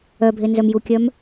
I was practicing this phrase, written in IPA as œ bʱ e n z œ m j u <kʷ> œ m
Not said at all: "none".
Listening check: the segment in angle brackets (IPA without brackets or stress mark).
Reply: kʲ